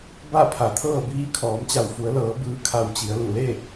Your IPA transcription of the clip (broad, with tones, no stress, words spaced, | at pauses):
ba˥˨pʰa˩˧t̪ʰɤː˥˨ biː˧˥ kʰɔː˩˧mt͡ɕa˧˩wfu˩˧ə̯lɤː˩˧ bɯː˧˥kʰa˧wt͡ɕi˩˧ə̯ lu˧˩le˥˨